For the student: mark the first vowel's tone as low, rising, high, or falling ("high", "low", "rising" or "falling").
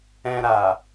low